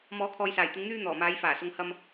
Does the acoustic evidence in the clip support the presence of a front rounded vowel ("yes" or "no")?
yes